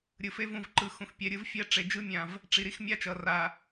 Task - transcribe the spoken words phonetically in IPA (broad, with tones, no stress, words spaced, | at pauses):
ɾʲɯ˨fe˦vũ˦˨vǃɯ˨˦ xũ˨xpʲɛ˨ ɾʲɯ˦vfʲɛ˦ ʈ͡ʂe˨d͡ʒɯ˦mʲã˨v | ʈ͡ʂi˨ɾi˦xmʲa˦t͡ʃʌ˨ ra˨